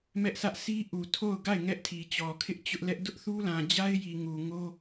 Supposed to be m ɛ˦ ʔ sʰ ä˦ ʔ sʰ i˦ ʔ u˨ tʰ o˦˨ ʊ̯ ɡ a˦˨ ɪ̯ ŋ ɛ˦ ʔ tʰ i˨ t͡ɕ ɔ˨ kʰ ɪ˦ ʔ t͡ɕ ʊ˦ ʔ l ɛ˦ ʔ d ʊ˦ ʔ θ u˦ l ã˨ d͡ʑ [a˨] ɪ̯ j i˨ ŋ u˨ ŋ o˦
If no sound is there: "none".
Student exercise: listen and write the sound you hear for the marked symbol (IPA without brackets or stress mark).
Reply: a˦